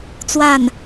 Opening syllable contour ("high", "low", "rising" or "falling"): falling